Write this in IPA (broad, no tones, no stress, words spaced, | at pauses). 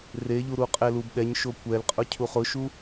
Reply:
reʎu ɾuqʼɛlubɗɛɲ ʃokʷɛlqʼʊ cʰuχʊʃu